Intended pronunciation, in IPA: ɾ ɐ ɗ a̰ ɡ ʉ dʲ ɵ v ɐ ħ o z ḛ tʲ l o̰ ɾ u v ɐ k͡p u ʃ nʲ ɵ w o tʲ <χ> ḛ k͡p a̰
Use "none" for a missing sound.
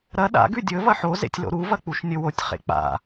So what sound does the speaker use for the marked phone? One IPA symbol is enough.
χ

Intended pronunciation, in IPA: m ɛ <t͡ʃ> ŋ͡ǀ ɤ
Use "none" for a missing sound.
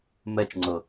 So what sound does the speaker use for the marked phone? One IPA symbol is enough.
t͡ʃ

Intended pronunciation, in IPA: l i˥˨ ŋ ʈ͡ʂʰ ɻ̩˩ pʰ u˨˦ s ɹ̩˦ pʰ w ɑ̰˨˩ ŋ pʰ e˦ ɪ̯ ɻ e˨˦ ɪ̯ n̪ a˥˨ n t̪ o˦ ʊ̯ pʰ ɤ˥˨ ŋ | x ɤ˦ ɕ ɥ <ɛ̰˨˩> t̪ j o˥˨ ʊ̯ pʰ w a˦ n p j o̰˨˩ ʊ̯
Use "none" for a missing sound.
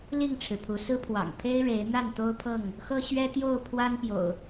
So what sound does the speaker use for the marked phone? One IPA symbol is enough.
ɛ˦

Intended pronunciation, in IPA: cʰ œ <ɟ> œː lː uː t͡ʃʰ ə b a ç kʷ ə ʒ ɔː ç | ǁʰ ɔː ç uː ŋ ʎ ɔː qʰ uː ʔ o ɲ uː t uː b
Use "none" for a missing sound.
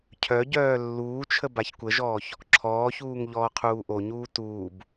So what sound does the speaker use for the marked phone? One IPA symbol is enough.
ɟ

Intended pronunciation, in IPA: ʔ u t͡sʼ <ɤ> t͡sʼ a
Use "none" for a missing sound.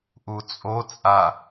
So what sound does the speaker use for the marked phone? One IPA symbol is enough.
o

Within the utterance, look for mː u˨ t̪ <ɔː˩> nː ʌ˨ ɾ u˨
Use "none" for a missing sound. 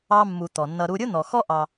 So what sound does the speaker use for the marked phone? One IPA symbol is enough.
ɔ˩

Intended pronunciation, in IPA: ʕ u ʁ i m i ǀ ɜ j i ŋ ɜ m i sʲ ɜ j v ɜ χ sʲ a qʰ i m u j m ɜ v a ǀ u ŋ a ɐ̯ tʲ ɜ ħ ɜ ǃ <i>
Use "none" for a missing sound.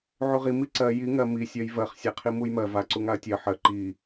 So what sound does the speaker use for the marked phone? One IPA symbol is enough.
i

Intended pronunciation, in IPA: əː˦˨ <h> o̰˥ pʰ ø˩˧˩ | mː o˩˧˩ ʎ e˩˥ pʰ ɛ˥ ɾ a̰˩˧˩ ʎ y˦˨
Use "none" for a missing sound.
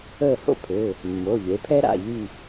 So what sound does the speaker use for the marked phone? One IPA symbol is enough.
h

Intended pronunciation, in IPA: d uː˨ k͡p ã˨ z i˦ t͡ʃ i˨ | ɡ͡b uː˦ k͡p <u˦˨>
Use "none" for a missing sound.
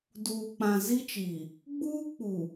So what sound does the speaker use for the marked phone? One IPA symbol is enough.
u˨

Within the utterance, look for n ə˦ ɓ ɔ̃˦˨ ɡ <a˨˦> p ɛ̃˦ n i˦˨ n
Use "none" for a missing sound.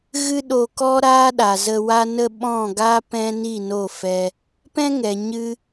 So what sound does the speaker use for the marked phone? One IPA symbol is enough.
a˦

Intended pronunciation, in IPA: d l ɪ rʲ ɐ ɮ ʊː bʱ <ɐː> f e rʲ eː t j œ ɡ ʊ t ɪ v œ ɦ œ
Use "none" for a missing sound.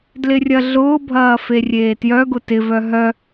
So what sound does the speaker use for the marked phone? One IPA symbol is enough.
ɐː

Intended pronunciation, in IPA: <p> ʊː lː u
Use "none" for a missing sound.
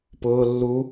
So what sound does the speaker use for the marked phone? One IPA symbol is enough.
p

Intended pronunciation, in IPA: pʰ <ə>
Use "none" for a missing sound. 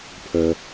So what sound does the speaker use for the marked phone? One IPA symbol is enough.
ə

